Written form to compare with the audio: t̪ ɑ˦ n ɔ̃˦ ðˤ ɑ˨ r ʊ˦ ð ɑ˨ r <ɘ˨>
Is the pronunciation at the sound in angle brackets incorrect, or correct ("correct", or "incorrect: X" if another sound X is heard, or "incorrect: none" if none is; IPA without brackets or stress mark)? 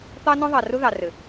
correct